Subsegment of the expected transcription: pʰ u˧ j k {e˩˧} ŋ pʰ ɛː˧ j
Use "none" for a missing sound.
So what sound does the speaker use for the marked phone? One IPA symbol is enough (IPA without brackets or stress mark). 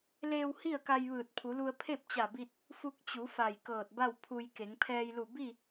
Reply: e˩˧